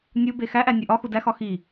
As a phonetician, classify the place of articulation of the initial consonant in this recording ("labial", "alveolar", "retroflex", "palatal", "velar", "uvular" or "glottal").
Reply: alveolar